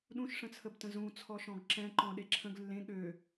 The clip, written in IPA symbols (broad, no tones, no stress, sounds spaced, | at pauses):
ɗ ũ ʃ ʂ ə̃ t͡sʰ ə b t ə̃ z ũ t͡sʰ ɔ ʃ ɔ̃ ɡ ǁ ɛ̃ ǃ ɔ̃ ɗ e ǁʰ ə̃ ɡ lː ẽ ɠ ø